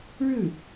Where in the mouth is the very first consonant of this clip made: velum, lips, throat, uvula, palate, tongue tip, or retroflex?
retroflex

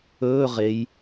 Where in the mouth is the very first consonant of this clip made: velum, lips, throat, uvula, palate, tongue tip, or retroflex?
uvula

